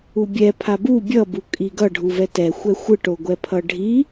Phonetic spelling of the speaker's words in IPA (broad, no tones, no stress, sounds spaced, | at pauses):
u bʲ ɛ pʰ a b u bʲ ʌ b u kʼ i ɡ ʌ ɖʱ u v ɛ t ɛ xʷ ɛ xʷ ɯ ʈ o ɡʷ ɛ pʰ ʌ ɖʱ i